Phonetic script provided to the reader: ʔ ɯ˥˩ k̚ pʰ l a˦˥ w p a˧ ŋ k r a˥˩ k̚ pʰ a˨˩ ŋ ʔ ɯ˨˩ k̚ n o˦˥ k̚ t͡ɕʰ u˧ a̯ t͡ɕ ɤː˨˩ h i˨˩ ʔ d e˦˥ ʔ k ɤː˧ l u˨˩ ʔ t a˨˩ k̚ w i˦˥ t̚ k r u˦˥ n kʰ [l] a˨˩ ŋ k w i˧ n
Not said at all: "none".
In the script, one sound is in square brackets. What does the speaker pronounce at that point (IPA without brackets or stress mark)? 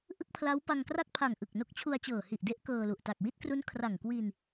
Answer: r